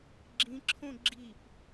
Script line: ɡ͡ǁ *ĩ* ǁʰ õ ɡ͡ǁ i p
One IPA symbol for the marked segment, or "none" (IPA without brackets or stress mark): ĩ